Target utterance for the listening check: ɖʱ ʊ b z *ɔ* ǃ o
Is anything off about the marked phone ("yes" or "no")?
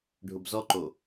no